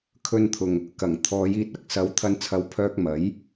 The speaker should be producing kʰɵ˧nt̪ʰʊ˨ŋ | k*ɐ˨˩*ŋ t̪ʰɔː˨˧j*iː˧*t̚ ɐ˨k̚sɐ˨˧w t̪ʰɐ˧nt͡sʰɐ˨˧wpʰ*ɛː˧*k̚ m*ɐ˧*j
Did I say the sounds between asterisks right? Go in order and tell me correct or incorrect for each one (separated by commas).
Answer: correct, correct, incorrect, incorrect